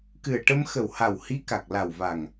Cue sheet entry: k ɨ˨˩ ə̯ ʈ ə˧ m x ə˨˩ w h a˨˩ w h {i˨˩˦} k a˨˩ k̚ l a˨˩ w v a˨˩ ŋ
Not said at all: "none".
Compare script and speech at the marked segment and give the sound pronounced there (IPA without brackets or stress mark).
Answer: i˧˥